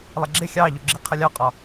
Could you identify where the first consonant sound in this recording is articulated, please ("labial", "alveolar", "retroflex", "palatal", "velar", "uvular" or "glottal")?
alveolar